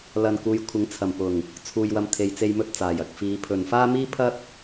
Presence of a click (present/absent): absent